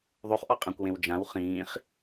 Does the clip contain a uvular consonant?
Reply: yes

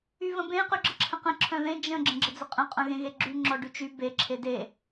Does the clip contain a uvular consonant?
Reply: yes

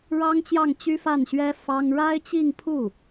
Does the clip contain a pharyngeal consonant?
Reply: no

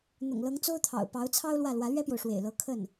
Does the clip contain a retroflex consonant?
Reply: yes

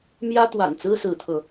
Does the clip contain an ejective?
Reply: no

